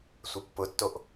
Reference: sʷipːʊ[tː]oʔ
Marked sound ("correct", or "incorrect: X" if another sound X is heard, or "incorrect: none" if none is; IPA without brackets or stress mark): correct